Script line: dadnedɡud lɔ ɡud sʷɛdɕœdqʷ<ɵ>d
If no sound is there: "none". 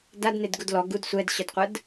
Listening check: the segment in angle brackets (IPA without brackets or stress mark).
ə